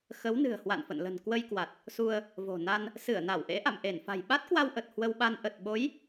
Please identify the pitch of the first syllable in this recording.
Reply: rising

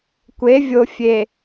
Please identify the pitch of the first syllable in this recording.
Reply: rising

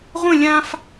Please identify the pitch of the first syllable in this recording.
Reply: falling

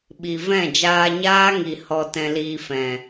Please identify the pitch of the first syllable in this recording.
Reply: low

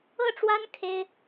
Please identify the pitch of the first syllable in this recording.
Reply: falling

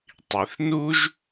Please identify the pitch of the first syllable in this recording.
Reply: low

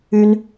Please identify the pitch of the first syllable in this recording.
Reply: high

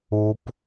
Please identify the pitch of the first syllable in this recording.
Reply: high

